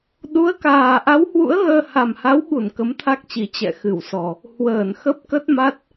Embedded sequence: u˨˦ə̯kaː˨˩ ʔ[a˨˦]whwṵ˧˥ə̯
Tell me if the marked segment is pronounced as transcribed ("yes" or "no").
yes